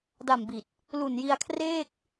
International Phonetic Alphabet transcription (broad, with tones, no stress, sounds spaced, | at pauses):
d a˨˩ m b i˨˩ t̚ | l u˨˩ n j i˧ a̯ kʰ r eː˥˩ k̚